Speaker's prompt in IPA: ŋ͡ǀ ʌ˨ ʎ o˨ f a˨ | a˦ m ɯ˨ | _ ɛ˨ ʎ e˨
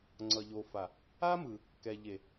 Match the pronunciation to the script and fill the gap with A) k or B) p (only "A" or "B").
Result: A